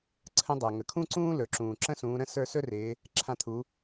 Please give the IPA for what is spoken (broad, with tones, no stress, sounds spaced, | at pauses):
ǀʰ ə̃˧˥ dˤ a˩ ŋ ə˩ kʰ ũ˥ ǀ ũː˥ l ɵ˩ ǁ ũː˩ ǁ ə̃˥ s ũː˩˧ ɾ ə̃˥ s ə˞˧ s ɵ˥ r ɪː˩˧ | ǁʰ ã˧˥ t̪ʰ u˩˧